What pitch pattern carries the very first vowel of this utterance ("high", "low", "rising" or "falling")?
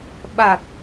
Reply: low